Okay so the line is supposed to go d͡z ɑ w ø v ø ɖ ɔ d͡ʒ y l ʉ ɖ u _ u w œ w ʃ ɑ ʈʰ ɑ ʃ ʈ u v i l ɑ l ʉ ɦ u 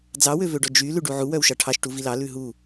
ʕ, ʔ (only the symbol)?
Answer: ʕ